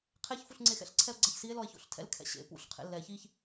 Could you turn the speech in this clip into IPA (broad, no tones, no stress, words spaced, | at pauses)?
qʰeç fuɬŋ͡ǀexɛ̰ɬ ǀʰɛo̯ɡ͡ǀaçsie̯ lɔe̯ço̰ɬtʰɛ̰l kʰɛ̰ɕḛ pṵɬ qʰḛlːɛ çiç